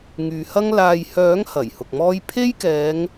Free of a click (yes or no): yes